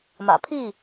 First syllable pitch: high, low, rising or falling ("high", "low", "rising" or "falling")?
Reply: low